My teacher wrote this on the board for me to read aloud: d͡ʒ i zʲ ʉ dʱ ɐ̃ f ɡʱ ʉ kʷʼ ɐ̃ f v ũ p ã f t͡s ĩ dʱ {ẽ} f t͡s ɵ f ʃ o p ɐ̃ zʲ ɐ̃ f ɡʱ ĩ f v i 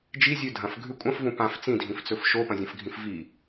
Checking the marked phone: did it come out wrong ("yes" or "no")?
yes